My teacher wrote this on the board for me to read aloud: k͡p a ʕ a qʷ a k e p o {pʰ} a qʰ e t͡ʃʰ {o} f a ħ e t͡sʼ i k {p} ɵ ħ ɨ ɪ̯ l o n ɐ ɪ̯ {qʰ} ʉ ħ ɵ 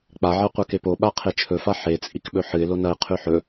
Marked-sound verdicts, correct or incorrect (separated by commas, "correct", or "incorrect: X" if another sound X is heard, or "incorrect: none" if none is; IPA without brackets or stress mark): incorrect: ɓ, incorrect: ɵ, incorrect: ɓ, correct